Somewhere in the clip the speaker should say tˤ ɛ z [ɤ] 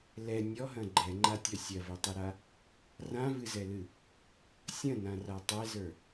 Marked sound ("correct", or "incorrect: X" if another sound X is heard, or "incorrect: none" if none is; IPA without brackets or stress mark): incorrect: ə˞